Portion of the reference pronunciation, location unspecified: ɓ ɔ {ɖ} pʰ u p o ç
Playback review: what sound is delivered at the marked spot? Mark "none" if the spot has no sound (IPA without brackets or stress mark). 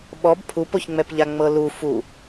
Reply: b